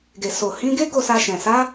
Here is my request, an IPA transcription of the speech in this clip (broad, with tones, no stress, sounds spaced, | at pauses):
ɡ e˨ s o˨ h ĩ˨˦ ɡ e˦ ɡ o˦˨ s a˧ ʃ ɛ̃˨ s a˨˦